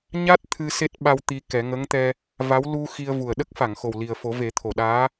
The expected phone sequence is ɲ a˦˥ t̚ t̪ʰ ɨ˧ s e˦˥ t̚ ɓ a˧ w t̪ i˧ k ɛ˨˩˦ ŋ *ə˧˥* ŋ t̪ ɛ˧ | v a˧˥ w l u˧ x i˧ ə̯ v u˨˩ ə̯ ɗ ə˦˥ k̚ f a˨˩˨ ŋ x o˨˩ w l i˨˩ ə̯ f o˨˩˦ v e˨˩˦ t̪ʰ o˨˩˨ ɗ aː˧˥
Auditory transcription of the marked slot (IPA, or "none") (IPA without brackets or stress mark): ə˧˥